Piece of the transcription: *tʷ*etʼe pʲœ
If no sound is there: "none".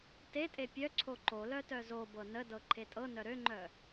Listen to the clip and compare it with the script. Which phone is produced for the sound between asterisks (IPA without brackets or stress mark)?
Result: t